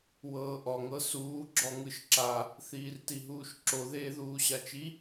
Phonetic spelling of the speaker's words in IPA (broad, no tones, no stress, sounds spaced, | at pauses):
w ɤː ʔ ɔ ŋ ɤ s uː ɡ͡ǁ ɔ ŋ ɯ ʃ ǁ a | θ iː r t i ɦ uː ʃ ǁ o ð eː ð uː ɕ a t͡ʃ i